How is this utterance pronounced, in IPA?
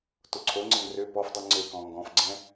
tʊǀʰoŋ͡ǀəŋ rø pɔfdˤu ŋ͡ǀe kɔ̃ŋɡɔ̃fɡ͡ǀɛ̃

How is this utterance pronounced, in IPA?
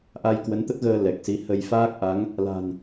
ʔa˧jkwə˨˦n t̪ə˦˥t̚ɣəː˧ lɛ˨˩k̚si˨˦ hə˧j faː˦˥k̚ʔa˨˦ŋ | la̤˨˩n

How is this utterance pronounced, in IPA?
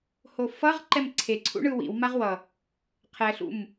hofʌʁ ǃɛmǀʰeǀʰṵɳɯ wḭw maʁwʌ | qʰɛɬṵm

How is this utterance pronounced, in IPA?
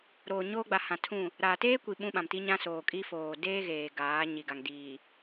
ɾoː˨ɲoː˦ɡ͡ba˨ hã˨tʰũ˦˨ | ɾaː˨teː˦kʷi˨ ɓũ˦ɓã˨m ti˦ ɲã˦soː˨kʼi˦ foː˨deː˦ɣeː˨ ɡaː˨˦ ɲi˨ɡa˨ŋ diː˨

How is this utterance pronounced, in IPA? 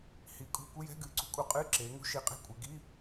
hi˨˦kʼṳ˧˥˧ kʷɪ˧˥˧jɛ̤˧˥˧ ɡɨː˨˦ǀṳ˨˦kʼu˨˦ qʼɨː˧˥˧ǁeː˨˦ŋṳ˧˥˧ ʃi˨˦qʼe̤˧˥˧ kʷʼe˨˦ ɡi˧˥˧

